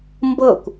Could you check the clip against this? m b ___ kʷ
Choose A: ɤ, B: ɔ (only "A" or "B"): A